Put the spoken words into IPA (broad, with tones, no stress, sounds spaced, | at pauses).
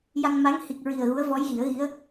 j a˧ ŋ m a˧˥ ŋ h i˨˩ k̚ ɹ i˨˩ ə̯ ɣ u˧˥ ə̯ v ɔ˧˥ j ɣ i˨˩˦ ə̯ ɣ i˧˥ ə̯